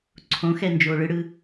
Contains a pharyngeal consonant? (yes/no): no